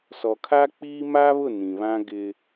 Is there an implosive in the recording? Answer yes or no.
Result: no